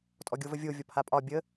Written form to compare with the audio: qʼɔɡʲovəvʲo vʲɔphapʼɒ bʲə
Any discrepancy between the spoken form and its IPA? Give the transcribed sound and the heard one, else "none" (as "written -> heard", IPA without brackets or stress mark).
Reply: qʼ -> tʼ